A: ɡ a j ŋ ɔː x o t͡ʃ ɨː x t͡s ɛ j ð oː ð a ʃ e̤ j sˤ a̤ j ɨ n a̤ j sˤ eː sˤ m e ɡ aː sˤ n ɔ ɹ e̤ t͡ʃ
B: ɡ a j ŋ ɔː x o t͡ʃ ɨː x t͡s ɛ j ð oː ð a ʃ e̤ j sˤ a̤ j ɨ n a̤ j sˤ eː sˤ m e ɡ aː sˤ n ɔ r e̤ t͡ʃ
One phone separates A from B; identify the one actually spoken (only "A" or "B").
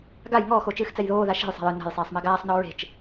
A